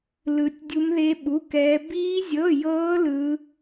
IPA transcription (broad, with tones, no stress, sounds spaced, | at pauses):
l ɯ˦˥ tʲ dʲ u˦˥ m ð e˦˥ ɓ u˧˥˧ k ɛː˦˥ b iː˦˥ zʲ ɤ˧˥˧ j ɤː˦˥ l ɯ˦˥